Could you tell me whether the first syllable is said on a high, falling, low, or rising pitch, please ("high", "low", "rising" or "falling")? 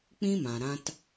high